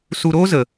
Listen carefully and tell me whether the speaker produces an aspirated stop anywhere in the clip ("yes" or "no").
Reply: no